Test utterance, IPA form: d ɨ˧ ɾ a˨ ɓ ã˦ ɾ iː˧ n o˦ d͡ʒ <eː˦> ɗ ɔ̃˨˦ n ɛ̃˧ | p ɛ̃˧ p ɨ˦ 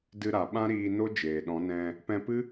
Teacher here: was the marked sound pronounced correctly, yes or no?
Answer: no